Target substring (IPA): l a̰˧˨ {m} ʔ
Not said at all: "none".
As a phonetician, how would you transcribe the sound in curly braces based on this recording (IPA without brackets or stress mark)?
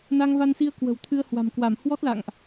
ŋ